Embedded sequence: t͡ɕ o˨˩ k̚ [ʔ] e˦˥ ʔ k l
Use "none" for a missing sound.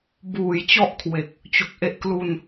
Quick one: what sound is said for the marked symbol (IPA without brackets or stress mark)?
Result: ʔ